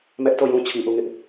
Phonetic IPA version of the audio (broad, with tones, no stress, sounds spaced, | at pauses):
m ɛ˦ ʔ t o˦˨ j ũ˦ t͡ɕʰ i˨ ʔ u˦˨ ŋ ɪ˦ ʔ